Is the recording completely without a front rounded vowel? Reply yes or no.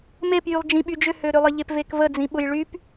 no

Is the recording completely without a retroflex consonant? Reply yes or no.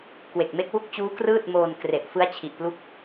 yes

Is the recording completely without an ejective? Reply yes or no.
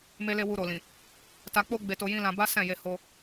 yes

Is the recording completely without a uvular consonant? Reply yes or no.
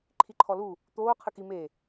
no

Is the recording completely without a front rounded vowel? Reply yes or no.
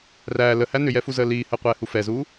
no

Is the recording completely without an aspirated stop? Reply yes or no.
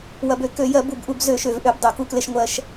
yes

